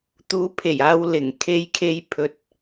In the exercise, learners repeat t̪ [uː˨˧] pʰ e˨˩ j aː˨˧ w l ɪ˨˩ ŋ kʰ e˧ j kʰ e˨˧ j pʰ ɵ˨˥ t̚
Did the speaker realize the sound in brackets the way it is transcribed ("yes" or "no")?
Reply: yes